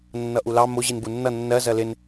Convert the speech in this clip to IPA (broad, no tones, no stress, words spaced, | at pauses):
nːʌʔulɑ mʊ ʑinbunːʌ nːɜ zɜlɪn